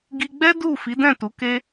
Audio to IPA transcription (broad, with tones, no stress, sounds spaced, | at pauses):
ɡ i˧ ɡ͡b ɛ˦ d u˦˨ f i˨˦ d ɛ̃˦˨ t u˨˦ k e˦